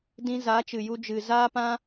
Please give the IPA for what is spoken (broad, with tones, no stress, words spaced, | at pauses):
dĩ˧za˨˦t͡ʃɨ˨ju˧ d͡ʒɨ˨zaː˦pã˦